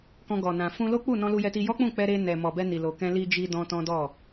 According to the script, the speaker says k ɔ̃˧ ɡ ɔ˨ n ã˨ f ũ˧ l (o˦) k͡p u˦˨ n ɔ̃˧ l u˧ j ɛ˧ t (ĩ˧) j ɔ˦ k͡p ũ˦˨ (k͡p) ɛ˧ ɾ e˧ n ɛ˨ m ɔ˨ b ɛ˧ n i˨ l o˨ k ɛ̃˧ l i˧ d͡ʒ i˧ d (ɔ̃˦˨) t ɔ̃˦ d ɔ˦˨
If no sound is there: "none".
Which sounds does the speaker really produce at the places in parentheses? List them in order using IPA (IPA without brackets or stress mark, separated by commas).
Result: o˦, i˧, k͡p, ɔ̃˧